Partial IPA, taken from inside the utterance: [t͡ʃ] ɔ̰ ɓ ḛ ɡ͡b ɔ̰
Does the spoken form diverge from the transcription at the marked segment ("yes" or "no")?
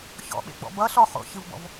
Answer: yes